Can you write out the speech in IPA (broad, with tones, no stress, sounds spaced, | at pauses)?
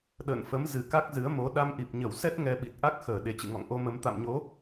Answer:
ɗ ə̰ː˧˨ n f ə˨˦ m z ɨ˨˩ k a˦˥ k̚ z ɨ˨˦ ə̯ m o˨˦ ɗ a˧ m ʔ i˨˩ p̚ ɲ ə˧˩ w s ɛ˦˥ t̚ ŋ ɛ˧ ɓ i˨˩ t̚ ʔ a˦˥ k̚ x əː˧˩ ɗ e˨˩ t͡ɕ ɨ̰˧˨ ŋ ɔ̰˧˨ ŋ ʔ o˧ m ə˨˦ m t̪ a̰˧˨ m ɲ o˨˦